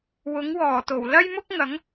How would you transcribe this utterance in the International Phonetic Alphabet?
w ʊ˨˥ ŋ w ɔː˨˩ t̪ o˨˩ w l ɐ˥ j m ʊ˥ k̚ ŋ ɐ˨˥ ŋ

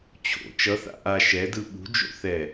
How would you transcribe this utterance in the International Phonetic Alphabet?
t͡ɕʰ o̰ t͡ʃ ʌ θ a̰ ʔ a ʃ ɛ d ɯ ɓ ṳ d͡ʒ o̰ θ ɛ

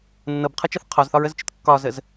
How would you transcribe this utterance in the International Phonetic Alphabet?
nː ɤ b qʰ ɤ t͡ʃ ɤ θ qʰ ɒ z θ ɒ ɹ ə z t͡ʃ ɨ t kː ɒ z ə z

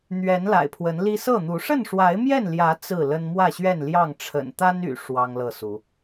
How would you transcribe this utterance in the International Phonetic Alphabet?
n̪ ɥ ɛ˨˦ n l a̰˨˩ ɪ̯ pʰ w ə˨˦ n l i˦ s ɤ˥˨ n̪ u˨˦ ʂ ə˥˨ n ʂ w a˨˦ ɪ̯ m j ɛ˥˨ n l j ä˨˦ t͡s ɹ̩˥˨ l ə˦ n m w ä˥˨ ɕ ɥ ɛ˥˨ n l j ɑ˥˨ ŋ ʈ͡ʂʰ ə̰˨˩ n t̪ a˦ n y̰˨˩ ʂ w ɑ˦ ŋ l ɤ˥˨ s u˨˦

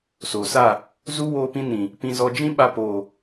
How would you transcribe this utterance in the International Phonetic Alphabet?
s oː˨ s a˦˨ | z u˦ w oː˧ p ĩ˧ n ĩ˨ | p ĩ˧ z ɔ˧ d͡ʒ ĩ˦ ɓ a˧ p oː˨

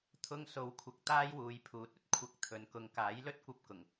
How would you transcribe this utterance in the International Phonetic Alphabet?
t̪ʰ ʊ˥ ŋ s o˨˥ w kʷʰ ɐ˧ k̚ t̪ aː˥ j w uː˨˧ j pʰ uː˨˥ t̚ ɵ˨˥ t̚ kʷʰ ɐ˨˥ k̚ t̪ʰ ɵ˨ n k ʊ˧ ŋ k aː˨˥ j l ɵ˥ t̚ kʷ ɐ˧ p̚ k ʊ˨˩ ŋ

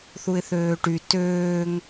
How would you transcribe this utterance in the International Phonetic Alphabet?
θ u ɪ̯ θ øː ʈ y t øː ŋ

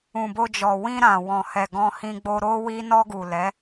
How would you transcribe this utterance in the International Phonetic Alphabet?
ũ˨ b o˧ d͡ʒ ɔ˨ w ĩ˧ ɾ ã˨ w ɔ̃˨ h ɛ˨ ɡ ɔ̃˧ h ĩ˧ ɡ͡b o˧ ɾ o˧ w i˧ n ɔ˧ ɡ u˨ l ɛ˨˦

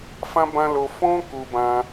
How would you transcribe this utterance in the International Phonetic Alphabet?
f ã˦ b ã˦ l o˧ f ɔ̃˦ k u˧ b ã˧

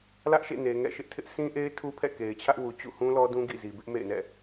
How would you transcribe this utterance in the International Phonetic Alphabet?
l ä˦ ʔ ʃ ḛ˦˨ n e˨ ŋ ɛ̰˦˨ ʃ ɪ˦ ʔ tʰ ɪ˦ ʔ sʰ ĩ˦ ʔ e˦ ɪ̯ tʰ u˦ pʰ ɛ̰˦˨ k e˨ ɪ̯ t͡ɕʰ ä˦ ʔ w u˨ t͡ɕ ṵ˦˨ h ũ˦ l ɔ˦ d ũ˦ ɡ ḭ˦˨ z i˨ b ɪ˦ ʔ m ḛ˦˨ ɪ̯ n ɛ̰˦˨

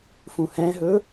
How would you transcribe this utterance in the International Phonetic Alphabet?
f ũ h ɛ̃ ɦ ɵ

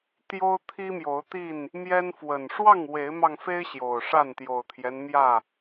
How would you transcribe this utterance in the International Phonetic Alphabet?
t̪ j o˦ ʊ̯ t̪ʰ i˦ m j o˨˦ ʊ̯ t̪ i˥˨ n | m j ɛ˦ n f w ə˨˩ n ʂ w ɑ˥˨ ŋ w e˨˦ ɪ̯ m ɑ˧ ŋ f e˦ ɪ̯ ɕ j o˨˩ ʊ̯ ʂ a˥˨ n t̪ j o˨˩ ʊ̯ t̪ʰ j ɛ˦ n m j ä˥˨

